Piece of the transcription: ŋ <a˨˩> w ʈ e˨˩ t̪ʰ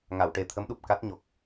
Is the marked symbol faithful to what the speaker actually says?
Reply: no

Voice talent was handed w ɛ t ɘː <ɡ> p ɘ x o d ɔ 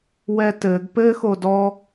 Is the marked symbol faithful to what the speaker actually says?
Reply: yes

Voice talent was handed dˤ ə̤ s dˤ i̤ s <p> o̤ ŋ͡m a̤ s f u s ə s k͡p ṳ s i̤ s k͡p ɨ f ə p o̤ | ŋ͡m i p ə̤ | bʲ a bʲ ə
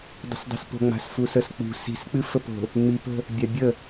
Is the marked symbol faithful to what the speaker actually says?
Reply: yes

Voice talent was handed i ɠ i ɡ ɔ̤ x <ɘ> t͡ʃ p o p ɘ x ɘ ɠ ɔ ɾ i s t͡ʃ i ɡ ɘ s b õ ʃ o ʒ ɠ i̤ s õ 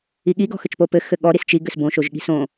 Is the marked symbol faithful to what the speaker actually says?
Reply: yes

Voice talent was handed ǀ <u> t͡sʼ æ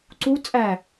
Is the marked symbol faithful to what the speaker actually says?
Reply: yes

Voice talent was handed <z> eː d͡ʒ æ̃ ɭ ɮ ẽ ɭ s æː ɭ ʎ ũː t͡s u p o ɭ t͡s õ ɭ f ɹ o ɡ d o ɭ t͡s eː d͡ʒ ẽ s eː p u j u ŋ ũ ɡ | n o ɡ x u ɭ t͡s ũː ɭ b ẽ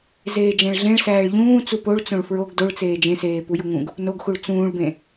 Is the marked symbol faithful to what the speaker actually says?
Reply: yes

